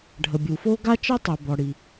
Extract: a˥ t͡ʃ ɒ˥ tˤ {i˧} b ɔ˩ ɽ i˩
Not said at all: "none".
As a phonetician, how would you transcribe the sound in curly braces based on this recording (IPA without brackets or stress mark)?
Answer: i˩